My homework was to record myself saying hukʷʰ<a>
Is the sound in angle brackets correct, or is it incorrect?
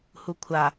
correct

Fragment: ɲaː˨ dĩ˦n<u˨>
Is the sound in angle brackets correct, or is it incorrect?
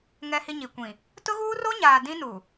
correct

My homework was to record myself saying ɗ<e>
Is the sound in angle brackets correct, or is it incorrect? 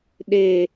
correct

